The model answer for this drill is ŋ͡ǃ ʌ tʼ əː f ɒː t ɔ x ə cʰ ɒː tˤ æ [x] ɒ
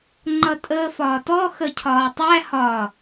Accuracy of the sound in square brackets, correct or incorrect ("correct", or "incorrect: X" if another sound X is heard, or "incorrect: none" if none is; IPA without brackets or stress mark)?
incorrect: h